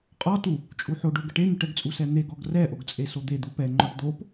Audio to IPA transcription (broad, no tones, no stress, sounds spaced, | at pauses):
qʼ ɔ t u | t͡ʃʼ u ħ o ɖ o ɡ ə ʈ e n̪ u ʈ ɛ ɡ t͡sʼ u s ɛ n̪ e ɡ ɔ ɡ r ɛ ʔ o ɡ t͡sʼ e s o d̪ e d̪ u p ɛ ŋ͡ǃ ɔ ʈ d̪ o p